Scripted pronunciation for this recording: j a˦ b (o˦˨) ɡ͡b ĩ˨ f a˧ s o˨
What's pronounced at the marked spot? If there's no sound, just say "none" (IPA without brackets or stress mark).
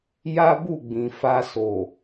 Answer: u˦˨